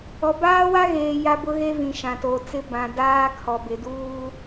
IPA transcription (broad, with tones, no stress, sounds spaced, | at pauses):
ɔ˨ b aː˦ w a˦ ɣ eː˨ j a˦ b ʊ˦ ɣ e˦ v ĩ˨ ʃ ã˨ t o˨ t͡s ɪ˦ b ã˨ d aː˦ kʰ ɔ˨ b ɪ˨ d uː˦